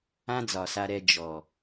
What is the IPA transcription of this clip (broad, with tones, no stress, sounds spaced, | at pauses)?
ã˦ d͡z ɒ˨ s a˧ ɾ ɛ˧ d͡ʒ ɔ˨